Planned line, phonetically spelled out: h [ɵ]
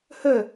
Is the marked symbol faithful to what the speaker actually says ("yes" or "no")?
no